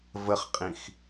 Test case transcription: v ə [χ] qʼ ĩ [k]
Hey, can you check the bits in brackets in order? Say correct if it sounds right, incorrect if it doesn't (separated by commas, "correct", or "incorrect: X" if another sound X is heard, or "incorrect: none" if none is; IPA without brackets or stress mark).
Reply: correct, incorrect: x